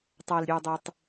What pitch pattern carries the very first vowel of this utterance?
low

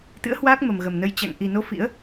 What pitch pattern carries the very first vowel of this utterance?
rising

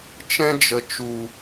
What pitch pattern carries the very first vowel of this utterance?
high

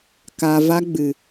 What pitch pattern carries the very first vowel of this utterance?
low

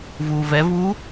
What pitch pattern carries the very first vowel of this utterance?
low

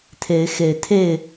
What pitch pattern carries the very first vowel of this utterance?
rising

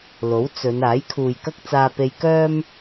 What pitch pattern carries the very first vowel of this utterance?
rising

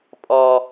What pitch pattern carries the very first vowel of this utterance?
low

